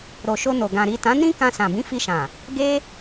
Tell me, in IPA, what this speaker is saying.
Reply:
ɾ o˨ ʃ o˧ n o˨ ɡ ã˨ ɾ i˨ t ã˨˦ n ĩ˦ k ã˧ s ã˨ b ĩ˨˦ f i˧ ʃ ã˨ | ɡ e˦

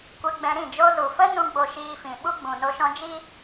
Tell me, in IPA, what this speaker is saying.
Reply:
kʷ ɛ˧ ɡ͡b ɛ̃˧ ɾ ĩ˦˨ d͡ʒ o˧ z u˨ f ə˦ n ũ˦ ɡ͡b o˧ ʃ iː˧ f ĩ˨ ɓ u˦ ɡ͡b ũ˨ n o˧ ʃ ɔ̃˧ d͡ʒ i˦

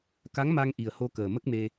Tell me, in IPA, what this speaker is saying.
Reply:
k a˧˥ ŋ m a˧ ŋ ʔ i˨˩ ə̯ h o˧ k əː˨˩ m ə˦˥ k̚ m e˧

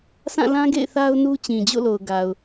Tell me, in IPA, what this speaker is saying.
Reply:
sʰ ã˦˨ l ã˦ ɡ ḛ˦˨ ɪ̯ θ a˦ ʊ̯ n u˦ t͡ɕ ĩ˨ d͡ʑ o̰˦˨ l o˨ ʊ̯ ɡ a˨ ʊ̯

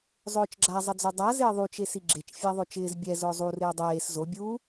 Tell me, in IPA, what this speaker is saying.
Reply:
zˤ ʊː t͡ʃ ɡ͡ǁ a zˤ ɪ d͡z o dˤ a z ɪː ðˤ u t͡ʃ e s i ɡ͡ǁ e t͡ʃ fʲ a ðˤ o t͡ʃ ɪː z bʲ ɛ z ʊː zˤ u r ɪː dˤ eː s z o bʲ u

